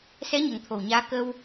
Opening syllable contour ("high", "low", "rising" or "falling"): rising